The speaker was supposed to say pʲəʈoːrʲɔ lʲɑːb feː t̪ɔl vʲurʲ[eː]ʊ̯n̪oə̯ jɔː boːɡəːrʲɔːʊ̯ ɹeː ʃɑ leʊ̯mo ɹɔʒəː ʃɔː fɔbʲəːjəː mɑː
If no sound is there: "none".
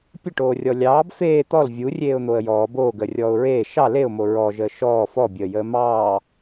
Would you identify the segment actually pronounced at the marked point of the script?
eː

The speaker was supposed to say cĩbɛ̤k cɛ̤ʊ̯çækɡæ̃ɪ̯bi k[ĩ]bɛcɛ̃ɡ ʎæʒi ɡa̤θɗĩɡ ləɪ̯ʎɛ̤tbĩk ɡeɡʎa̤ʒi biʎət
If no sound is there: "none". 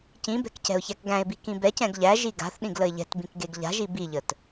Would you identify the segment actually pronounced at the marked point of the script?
ĩ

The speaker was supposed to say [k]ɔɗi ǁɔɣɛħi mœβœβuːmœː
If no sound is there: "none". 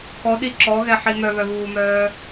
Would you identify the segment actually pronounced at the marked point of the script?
k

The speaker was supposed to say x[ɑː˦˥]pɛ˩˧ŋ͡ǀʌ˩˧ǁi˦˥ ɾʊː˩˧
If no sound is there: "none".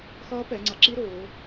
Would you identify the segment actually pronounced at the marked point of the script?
ʌː˦˥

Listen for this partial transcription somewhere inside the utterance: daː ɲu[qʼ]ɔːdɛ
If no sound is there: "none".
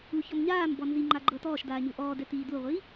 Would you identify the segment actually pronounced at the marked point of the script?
ʔ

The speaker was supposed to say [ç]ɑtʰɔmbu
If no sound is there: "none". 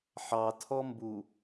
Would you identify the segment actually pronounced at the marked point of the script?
ħ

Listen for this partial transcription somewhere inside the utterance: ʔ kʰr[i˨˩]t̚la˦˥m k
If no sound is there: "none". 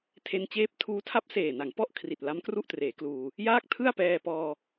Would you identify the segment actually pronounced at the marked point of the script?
i˨˩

